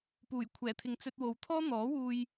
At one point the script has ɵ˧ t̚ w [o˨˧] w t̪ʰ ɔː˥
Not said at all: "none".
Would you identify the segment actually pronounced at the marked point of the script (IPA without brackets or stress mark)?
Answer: o˨˧